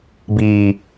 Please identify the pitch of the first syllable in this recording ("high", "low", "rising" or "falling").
low